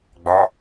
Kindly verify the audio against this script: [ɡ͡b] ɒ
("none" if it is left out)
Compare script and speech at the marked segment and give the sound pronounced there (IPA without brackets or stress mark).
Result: ɡ͡b